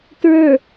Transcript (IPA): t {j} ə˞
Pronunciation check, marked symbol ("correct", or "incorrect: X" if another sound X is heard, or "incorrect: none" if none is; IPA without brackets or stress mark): incorrect: ɹ